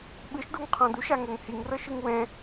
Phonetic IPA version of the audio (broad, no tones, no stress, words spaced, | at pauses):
ɓɯʃɖuŋqʰɔ̃ duʃaŋoŋ hiŋrɤʃɯŋ wɛ̃